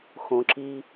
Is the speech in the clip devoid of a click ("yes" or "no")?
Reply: no